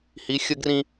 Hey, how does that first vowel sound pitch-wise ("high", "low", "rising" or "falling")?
rising